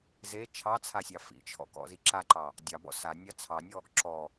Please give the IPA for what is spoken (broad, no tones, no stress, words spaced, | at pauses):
ze t͡ʃʰɑt͡sʰasʲɑ fḭt͡ʃʰɔ̰kɔ̰zi ǁaǃɑ | dʲɑbɔ̰ sanʲɑ t͡sʰɑnʲɔ | ǁɔ